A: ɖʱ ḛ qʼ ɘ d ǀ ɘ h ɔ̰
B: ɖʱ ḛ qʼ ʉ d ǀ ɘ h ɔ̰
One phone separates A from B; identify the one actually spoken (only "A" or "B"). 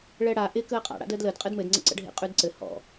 B